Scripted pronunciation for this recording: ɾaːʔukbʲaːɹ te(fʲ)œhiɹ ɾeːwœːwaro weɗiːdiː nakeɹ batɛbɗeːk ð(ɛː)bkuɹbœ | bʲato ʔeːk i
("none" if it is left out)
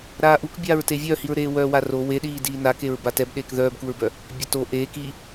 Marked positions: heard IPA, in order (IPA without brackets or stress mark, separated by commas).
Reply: vʲ, œː